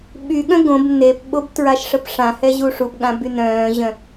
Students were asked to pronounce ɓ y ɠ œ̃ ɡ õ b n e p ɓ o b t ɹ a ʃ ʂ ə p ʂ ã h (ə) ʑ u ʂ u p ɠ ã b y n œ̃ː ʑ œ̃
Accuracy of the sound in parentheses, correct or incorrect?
incorrect